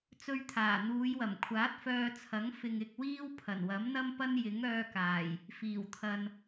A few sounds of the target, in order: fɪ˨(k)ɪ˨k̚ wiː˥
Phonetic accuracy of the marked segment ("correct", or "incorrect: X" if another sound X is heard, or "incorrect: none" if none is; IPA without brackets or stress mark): incorrect: ŋ